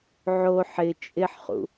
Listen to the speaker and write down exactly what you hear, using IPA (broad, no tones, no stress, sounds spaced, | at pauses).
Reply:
ʕ o ħ ɪ t͡ʃʼ ɪ ħ χ ṵ